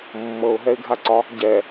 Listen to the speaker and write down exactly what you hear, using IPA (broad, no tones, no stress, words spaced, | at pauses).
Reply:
mːɤʊ̯ɦɛɪ̯ɡʱaǀɒ | ɟɛ